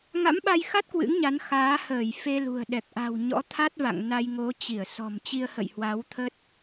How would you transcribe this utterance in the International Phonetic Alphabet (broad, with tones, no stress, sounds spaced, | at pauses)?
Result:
ŋ a̰˧˥ m ɓ a˧ j x a˦˥ t̚ k w ɨ̰˧˥ ŋ ɲ a˨˦ n x aː˨˦ h əː˧˩ j f e˧ l ṳ˨˩ ə̯ ɗ ɛ˨˩ k̚ ʔ a̤˨˩ w ɲ ɔ̰˧˥ t̪ʰ a˦˥ t̚ v a̰˧˨ ŋ n a˧ j ŋ o˨˦ t͡ɕ i˧˩ ə̯ s ɔ̤˨˩ m t͡ɕ i˧ ə̯ h ə̰˧˨ j h w a˨˦ w t̪ʰ ə˦˥ t̚